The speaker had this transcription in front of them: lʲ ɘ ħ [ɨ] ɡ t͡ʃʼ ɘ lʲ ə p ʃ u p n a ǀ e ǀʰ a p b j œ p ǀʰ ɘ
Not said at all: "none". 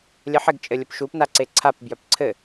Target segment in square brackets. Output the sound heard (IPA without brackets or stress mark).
ɪ